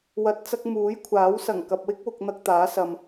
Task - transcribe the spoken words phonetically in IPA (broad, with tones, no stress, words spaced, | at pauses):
wɐ˨t̚t͡sɐ˧k̚ muː˨˥jkʷʰaː˨˥wsɐ˨˩ŋkɐ˨p̚ wɪ˥k̚wʊ˨k̚ n̪ɐ˧k̚t̪aː˨˥sɐ˨m